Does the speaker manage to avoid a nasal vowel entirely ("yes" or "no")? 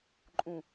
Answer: no